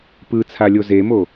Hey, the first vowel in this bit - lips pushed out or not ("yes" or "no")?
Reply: no